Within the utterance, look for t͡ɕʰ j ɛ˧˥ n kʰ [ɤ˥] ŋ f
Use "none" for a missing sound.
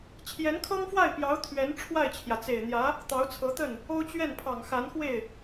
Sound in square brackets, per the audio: ɤ˥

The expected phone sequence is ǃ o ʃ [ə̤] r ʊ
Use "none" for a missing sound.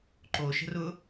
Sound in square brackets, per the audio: ə̤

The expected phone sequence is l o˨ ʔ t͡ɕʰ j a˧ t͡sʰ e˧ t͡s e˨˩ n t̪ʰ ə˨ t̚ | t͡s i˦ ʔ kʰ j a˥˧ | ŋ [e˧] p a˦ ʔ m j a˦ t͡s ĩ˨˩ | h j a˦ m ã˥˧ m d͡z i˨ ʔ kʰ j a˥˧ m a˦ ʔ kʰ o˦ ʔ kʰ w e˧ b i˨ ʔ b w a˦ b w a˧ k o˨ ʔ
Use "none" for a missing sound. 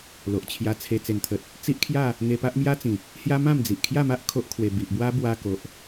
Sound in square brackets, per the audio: e˧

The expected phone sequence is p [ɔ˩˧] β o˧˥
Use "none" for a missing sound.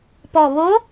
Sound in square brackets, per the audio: ɔ˨˩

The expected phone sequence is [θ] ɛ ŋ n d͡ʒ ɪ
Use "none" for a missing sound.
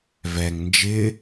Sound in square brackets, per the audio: v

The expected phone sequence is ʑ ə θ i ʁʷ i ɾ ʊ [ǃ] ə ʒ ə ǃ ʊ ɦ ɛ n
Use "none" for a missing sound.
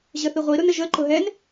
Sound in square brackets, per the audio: n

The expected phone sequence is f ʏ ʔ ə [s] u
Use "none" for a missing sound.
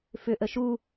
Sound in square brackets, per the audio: ʃ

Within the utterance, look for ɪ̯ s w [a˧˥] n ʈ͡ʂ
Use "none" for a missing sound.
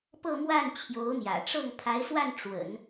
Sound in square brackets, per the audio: a˥˩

